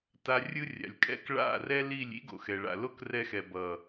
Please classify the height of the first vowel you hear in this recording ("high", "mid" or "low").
low